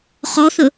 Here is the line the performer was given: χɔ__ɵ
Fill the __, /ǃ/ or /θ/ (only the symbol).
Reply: θ